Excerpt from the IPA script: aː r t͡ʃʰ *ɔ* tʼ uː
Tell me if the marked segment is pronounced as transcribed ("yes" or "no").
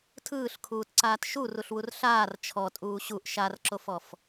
yes